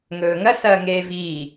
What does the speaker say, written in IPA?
ŋ ɵː ŋ ɐ s ɐː ŋ eː v iː

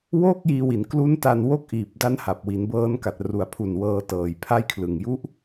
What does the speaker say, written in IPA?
w oː˥˩ k̚ j iː˧ w i˩˦ n k l u˦˥ n t a˧ n w o˦˥ k̚ ʔ iː˨˩ p̚ d a˦˥ n h a˨˩ p̚ w i˩˦ n b ɤː˦˥ n k a˨˩ t̚ r u˨˩ a̯ pʰ u˨˩ n w ɤː˧ t ɤː˨˩ j pʰ a˦˥ j kʰ l ɯ˨˩ ŋ j u˦˥ ʔ

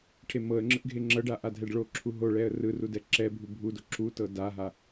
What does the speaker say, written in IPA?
ʈʰ e m ɤ ə̯ ŋ͡ǁ ɯ ʔ ɡʱ e ŋ͡ǁ ɤ ɖ a ʔ a dʱ ɛ ɖ ɭ o ǁʰ u ɦ o ɭ ɛ ə̯ r ɯ r u d ɛ ǁ ɛ bʱ u bʱ u d o ǁ u t ɤ d a ɦ a

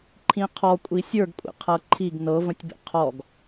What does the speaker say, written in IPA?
ǃʰ ĩ qʰ ɔ kʷʼ i sʲ ə˞ ɡ kʷʼ ḭ qʰ ɤ ǃʰ i ɡ n ɤ v ə̃ tʲ b ḭ qʰ ɔ ɡ

